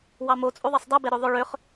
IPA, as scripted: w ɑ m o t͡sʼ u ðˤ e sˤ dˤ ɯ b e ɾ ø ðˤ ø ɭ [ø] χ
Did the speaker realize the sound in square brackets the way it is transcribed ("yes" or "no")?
yes